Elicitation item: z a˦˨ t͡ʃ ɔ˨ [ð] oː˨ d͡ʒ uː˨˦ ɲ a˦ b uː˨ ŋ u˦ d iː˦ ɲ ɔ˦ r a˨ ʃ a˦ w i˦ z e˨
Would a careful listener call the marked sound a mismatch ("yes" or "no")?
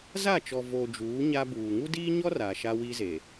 yes